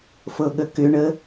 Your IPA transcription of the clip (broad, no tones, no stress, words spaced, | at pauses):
fɤɠəkʏɳə